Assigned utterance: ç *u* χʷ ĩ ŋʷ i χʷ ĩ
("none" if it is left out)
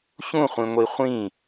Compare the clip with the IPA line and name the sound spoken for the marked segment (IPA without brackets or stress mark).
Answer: ũ